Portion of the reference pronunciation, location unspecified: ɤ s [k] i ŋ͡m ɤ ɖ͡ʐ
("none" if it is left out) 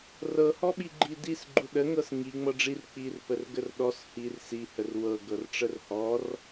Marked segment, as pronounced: ŋ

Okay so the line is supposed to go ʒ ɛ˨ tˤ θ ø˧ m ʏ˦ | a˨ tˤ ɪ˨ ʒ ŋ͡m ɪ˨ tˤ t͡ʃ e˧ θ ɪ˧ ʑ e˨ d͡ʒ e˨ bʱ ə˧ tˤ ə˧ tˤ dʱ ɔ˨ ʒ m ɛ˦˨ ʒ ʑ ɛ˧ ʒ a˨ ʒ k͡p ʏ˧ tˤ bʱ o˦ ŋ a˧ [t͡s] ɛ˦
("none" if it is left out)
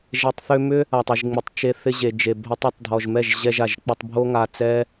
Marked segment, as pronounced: t͡s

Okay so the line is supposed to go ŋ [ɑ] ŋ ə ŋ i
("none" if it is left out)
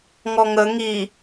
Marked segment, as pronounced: ɔ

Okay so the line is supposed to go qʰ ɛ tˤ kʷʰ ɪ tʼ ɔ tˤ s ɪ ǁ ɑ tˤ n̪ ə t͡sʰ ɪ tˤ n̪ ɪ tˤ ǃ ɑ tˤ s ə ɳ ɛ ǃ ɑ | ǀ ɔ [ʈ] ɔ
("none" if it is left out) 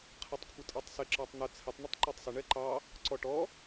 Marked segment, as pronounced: ʈ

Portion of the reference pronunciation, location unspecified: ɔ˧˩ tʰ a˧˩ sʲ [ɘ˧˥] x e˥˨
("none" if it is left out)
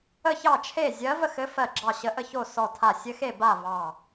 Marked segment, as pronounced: ɘ˧˥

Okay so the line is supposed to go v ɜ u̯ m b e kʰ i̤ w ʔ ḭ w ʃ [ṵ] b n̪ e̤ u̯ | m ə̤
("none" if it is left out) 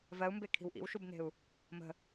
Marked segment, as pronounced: u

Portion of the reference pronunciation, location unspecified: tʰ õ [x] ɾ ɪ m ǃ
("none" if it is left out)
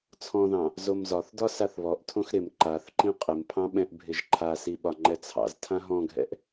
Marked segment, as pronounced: x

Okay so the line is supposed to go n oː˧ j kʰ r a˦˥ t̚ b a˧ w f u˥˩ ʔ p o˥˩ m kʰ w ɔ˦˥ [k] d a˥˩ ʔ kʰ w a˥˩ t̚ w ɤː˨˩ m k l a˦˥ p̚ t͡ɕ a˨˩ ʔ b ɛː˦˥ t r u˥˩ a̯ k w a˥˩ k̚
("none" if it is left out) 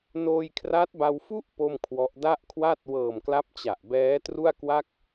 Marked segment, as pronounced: ʔ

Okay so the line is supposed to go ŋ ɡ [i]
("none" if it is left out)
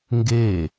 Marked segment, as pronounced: e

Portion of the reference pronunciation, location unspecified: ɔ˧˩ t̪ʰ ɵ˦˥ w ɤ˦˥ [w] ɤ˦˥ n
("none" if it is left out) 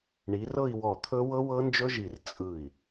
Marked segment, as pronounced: w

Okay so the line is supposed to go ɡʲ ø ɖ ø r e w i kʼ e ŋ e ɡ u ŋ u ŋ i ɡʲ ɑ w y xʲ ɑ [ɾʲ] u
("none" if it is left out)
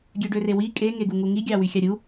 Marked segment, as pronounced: ɾʲ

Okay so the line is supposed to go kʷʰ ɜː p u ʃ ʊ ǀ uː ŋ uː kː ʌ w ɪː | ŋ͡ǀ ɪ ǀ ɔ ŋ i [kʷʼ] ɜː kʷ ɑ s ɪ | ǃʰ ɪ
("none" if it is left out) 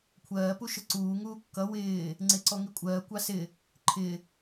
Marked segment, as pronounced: kʷʼ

